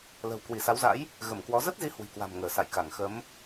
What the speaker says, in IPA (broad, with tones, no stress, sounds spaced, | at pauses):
l ə̤˨˩ w k w i˧˩ s a˨˦ w z a̰˧˥ j | ɣ ə˧˩ m k w ɔ˨˦ z ə˦˥ t̚ z i˨˦ h w i̤˨˩ k w a̤˨˩ m ŋ əː˧˩ s a̰˧˨ j k a˧˩ ŋ x ə˨˦ m